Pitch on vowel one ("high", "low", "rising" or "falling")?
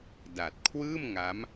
low